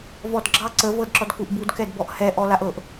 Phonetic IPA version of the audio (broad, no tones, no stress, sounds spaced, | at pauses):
v ɔ d ɡ͡ǁ ɑ ǀ ə v ɤ d ǁ ɔ d k u ʔ b u d k ɛ d b ɔ ʔ h ɛ ʔ ɔ l a ʔ ɤ ʔ